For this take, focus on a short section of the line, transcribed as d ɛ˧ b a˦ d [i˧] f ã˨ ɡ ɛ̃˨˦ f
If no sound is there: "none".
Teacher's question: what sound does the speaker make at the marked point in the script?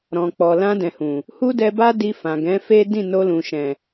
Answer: i˧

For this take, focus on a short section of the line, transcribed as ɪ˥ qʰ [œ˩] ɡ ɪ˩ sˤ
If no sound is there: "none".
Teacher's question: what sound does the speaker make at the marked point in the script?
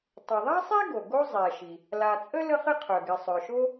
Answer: œ˩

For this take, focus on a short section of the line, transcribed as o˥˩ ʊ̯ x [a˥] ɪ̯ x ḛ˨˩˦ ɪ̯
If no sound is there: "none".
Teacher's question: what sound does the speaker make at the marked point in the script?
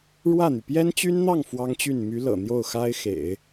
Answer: a˥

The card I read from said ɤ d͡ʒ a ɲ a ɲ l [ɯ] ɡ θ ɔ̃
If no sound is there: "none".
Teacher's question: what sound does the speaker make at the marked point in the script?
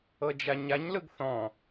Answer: ɯ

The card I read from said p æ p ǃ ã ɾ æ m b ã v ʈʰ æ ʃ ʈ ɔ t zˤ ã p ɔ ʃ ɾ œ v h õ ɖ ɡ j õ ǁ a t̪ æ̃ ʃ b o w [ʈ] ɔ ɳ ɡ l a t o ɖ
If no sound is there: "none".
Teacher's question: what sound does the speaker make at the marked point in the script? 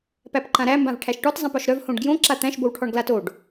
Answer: ʈʰ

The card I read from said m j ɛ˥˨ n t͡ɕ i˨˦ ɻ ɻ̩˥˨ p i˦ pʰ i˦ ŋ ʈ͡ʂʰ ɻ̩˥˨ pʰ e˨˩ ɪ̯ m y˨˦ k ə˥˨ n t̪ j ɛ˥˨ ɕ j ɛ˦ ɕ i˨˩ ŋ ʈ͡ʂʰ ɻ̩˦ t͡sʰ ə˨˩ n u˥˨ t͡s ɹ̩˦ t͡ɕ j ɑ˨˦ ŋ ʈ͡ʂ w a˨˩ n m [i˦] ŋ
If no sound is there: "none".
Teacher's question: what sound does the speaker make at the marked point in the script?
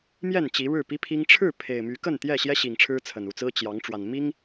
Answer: i˦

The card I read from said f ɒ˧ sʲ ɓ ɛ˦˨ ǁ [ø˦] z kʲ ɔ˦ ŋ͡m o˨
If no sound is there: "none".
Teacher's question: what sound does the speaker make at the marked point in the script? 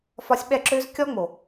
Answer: ø˦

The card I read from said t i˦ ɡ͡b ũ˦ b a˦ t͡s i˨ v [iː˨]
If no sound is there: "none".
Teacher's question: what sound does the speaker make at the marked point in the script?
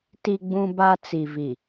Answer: i˨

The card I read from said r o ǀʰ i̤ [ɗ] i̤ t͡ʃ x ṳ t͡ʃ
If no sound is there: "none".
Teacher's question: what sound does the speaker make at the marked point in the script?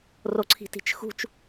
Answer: t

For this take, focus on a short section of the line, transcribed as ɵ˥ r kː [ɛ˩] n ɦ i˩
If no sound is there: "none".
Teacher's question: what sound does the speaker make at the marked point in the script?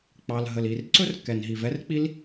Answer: ɛ˩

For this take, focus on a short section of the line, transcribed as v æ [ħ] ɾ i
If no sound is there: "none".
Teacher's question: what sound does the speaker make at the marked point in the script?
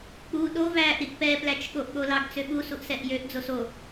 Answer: ʔ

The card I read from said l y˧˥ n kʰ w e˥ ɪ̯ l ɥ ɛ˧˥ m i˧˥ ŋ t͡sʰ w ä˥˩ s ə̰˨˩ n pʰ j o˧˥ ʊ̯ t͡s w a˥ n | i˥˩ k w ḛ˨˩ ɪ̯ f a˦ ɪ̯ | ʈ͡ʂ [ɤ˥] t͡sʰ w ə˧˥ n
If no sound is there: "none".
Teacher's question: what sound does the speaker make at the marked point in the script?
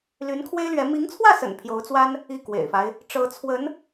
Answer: ɤ˧˥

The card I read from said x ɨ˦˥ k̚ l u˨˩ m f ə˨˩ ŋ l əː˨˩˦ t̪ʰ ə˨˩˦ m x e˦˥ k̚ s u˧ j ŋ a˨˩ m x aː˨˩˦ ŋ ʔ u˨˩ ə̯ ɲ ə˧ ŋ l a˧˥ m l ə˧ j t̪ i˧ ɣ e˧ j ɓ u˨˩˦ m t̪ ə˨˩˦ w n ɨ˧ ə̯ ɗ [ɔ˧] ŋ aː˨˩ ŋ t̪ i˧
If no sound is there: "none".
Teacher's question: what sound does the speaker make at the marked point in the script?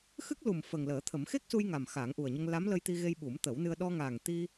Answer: ɔ˧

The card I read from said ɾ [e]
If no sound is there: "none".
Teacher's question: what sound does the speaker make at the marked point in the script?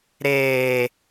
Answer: eː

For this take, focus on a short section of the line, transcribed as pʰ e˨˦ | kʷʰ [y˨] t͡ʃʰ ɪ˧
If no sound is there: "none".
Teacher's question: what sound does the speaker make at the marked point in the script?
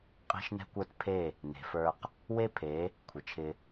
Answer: ɪ˨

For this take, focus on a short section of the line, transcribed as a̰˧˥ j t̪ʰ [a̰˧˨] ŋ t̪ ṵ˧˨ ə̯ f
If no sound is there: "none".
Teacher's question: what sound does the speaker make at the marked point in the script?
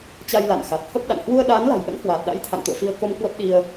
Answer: a̰˧˨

